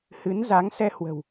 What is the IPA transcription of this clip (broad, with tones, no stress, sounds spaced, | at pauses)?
h ɨ˨˦ n z a˨˦ ŋ s ɛ˧ h w ə̤˨˩ w